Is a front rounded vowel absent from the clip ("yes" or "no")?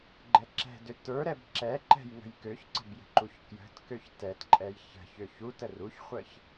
no